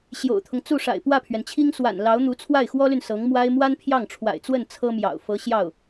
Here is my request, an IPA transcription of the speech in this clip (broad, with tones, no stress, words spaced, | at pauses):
ɕjo̰˨˩ʊ̯t̪ʰʊ˦ŋt͡su˥˩ʂa̰˨˩ɪ̯ pwä˥˩pʰɥɛ˩nt͡ɕʰi˥ŋ swa̰˨˩n lɑ˧˥ʊ̯n̪u˧˥ t͡sʰwa˥˩ɪ̯xwɔ˥ly˨n sɤ˧˥ŋ mwa˥ɪ̯ mwa˥npʰjɑ˥˩ŋʈ͡ʂʰwa̰˨˩ɪ̯t͡swə˥˩n t͡sʰɤ˥mjɑ̰˨˩ʊ̯ fɤ˧˥ ɕjɑ˥˩ʊ̯